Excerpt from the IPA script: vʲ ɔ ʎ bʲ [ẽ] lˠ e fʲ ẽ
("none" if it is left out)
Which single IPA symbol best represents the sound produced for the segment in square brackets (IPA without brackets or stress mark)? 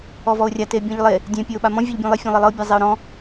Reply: ẽ